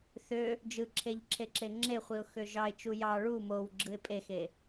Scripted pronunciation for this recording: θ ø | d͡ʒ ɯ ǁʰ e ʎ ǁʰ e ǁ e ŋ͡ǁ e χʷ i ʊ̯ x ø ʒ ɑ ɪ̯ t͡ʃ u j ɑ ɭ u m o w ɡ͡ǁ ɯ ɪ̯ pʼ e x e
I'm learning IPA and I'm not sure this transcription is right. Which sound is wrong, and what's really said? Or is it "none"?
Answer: none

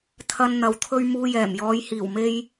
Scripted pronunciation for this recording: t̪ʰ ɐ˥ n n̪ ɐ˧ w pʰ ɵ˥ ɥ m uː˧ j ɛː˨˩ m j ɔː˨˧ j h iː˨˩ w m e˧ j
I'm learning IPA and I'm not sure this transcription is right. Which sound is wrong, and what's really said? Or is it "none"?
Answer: pʰ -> t̪ʰ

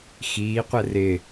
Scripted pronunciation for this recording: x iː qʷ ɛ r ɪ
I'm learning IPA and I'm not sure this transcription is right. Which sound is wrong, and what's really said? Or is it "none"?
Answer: none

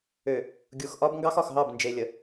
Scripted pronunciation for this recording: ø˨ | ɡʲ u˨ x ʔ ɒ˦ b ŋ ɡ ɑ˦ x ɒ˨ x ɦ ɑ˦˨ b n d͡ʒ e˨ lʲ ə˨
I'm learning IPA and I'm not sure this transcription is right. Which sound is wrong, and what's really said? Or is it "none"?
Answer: none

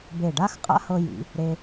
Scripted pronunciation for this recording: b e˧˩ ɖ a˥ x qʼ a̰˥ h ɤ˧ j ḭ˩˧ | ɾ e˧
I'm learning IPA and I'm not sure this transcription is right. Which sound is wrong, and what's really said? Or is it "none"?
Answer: none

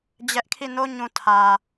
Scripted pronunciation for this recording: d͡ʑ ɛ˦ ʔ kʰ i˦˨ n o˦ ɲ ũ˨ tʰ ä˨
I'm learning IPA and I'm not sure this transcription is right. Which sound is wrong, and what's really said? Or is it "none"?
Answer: none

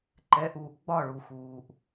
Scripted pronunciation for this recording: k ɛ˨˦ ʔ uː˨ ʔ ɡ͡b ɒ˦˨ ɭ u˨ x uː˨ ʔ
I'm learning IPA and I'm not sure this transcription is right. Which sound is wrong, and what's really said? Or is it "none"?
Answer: k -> ǃ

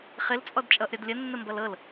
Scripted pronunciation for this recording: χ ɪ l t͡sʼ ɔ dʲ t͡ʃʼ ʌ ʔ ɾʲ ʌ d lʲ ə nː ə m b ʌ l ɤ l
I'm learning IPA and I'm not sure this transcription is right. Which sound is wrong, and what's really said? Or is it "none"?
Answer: dʲ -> d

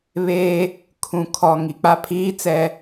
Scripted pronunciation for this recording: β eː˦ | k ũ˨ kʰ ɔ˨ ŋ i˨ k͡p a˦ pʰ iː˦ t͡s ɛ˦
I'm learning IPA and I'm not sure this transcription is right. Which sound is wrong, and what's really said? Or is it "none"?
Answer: k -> kʰ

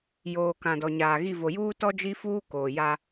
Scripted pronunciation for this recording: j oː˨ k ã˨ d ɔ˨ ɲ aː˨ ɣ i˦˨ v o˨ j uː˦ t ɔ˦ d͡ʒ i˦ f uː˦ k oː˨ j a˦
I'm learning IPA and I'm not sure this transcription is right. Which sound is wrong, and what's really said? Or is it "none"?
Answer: none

